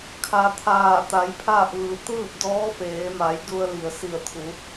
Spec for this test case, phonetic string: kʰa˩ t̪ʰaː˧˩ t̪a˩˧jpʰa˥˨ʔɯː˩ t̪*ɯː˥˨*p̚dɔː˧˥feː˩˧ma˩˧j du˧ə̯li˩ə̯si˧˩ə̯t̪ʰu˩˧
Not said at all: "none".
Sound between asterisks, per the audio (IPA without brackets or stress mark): ɯː˥˨